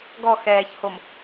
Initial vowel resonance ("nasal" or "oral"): oral